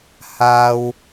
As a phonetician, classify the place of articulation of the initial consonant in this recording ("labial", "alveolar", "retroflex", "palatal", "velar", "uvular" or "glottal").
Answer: glottal